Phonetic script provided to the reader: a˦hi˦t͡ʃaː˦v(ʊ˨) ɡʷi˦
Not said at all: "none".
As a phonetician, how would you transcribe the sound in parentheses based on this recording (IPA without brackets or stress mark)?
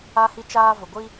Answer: ʊ˨